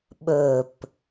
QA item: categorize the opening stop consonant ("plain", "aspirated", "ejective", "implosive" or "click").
implosive